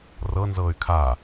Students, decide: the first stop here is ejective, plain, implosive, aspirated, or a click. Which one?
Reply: aspirated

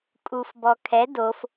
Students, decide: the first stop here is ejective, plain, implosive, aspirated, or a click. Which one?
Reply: ejective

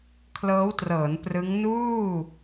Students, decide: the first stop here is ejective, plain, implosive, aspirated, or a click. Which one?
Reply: aspirated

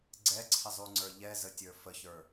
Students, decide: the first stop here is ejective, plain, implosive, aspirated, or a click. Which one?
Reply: click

